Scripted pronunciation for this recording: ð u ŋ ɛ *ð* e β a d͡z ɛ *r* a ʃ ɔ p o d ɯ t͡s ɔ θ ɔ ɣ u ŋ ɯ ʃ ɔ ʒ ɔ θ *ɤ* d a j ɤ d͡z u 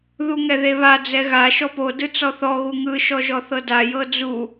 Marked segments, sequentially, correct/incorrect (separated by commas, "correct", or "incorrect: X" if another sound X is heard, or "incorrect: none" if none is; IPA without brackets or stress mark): correct, incorrect: ɣ, correct